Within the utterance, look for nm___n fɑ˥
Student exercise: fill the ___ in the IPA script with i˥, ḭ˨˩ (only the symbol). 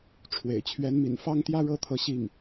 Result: ḭ˨˩